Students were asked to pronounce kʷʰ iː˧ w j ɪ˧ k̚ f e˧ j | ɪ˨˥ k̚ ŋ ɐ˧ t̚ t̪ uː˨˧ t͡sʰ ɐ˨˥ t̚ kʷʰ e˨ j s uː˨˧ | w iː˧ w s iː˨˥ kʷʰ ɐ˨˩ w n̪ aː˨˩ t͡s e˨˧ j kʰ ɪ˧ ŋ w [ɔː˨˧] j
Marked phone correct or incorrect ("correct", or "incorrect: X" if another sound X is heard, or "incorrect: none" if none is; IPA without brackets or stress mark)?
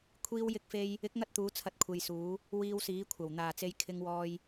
incorrect: ɔː˧